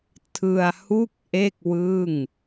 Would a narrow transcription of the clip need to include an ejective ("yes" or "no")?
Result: no